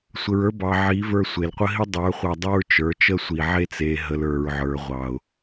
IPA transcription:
sʷ ɘ˨ ɹ ə˞˧ b ɑ˨ ʕ i˨˦ v ə˞˧ sʷ e˨ l qʷ ə˦ ɦ i˦ dˤ ə˞˨˦ χʷ ɑ˧ dˤ ɑ˦ ɹ t͡ʃ ə˞˨˦ t͡ʃ ə˦ sʷ i˨ ʕ e˧ t͡s e˨ ɦ ə˨ l ə˞˨ ɹ ʕ ə˞˨ ʁʷ ɑ˨ ʊ̯

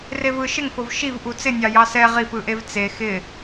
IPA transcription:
r e v ɯ ʃ ɪ ŋ f o v ʃ i v ʔ u t͡s ɪ nʲ ɑ j ɑ s ɛ ʁ i f ɯ ʔ e v t͡s e x ɪ

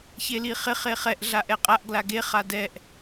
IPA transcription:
ç e l i χ ɪ χ e χ ɛ ʔ ɮ a ʔ ɛ qʼ a ʔ ɡ l a ɡ e χ a d ɛ ʔ

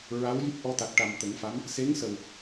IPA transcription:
ɹ a˧˥ w j i˦˥ p̚ ʔ ɔ˧ t̪ a˨˩ k̚ ʈ a˨˩ m t̪ ə˨˩˦ ŋ f a˧˥ m | s e˧˥ ŋ s ə˨˩ w

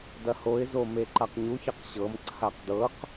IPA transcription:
d ɐ h o ɪ̯ z o m e ǃ a q ɲ u ç ɐ q ɕ ɤ m ǀʰ a q d ɤ q

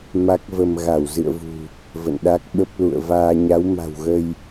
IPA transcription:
m a˦˥ k̚ v ə˧ m ɣ a˧˩ w z ɨ̰˧˨ ə̯ v ṳ˨˩ | v ə̰˧˨ n ɗ a˦˥ k̚ ɓ ə˦˥ p̚ l ṵ˧˨ ə̯ v aː˧ ɲ a˨˦ w m a̤˨˩ w ɣ ə˧ j

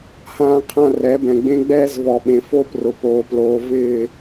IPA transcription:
h ãː˦ qʰ ã˦ r ɛ˨˦ b ɛ̃˨ ɡ͡b ẽ˦ ɡ͡b ɛː˦ z v ɔ˨ ɓ ẽ˨ f o˦ p r ʊ˨ p oː˨ p l oː˨ v ɪː˦˨

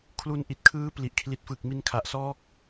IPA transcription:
kʰ l u˧ n ʔ i˨˩ t̚ kʰ ɯː˦˥ p l i˨˩ ʔ kʰ l i˨˩ t̚ f ɯ˨˩ k̚ m i˧ n kʰ a˨˩ ʔ s ɔː˦˥ k̚

